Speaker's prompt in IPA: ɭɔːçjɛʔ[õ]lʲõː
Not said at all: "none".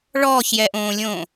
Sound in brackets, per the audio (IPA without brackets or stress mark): õː